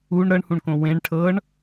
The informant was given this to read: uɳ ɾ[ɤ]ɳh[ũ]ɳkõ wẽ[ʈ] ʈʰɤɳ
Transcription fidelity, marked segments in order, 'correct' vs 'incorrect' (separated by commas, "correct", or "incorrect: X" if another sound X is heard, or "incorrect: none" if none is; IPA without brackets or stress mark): correct, correct, incorrect: ɳ